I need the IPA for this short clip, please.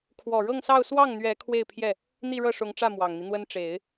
kʰ w ɔ˨˩ ɻ ɤ˥˧ ŋ s ɑ˥˧ ʊ̯ s w ɑ˥˩ ŋ n̪ ɥ ɛ˧˥ kʰ w e˥˧ ɪ̯ pʰ j ɛ˥˩ | n̪ i˥˧ ɻ ɤ˥˩ ʂ ʊ˧˥ ŋ ʈ͡ʂ ä˥˩ m w ɑ˨˩ ŋ n̪ i˦ n̪ w ə˥ n ʈ͡ʂ e˨˩˦ ɪ̯

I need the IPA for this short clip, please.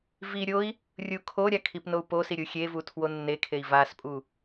v i ɾʲ o i̯ | rʲ u kʰ o ɾʲ a kʰ i p n o u̯ p o s i ɾʲ u xʲ e v u tʰ w o nː e kʰ e i̯ v a s pʼ u

